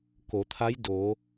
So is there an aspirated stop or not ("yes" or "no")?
yes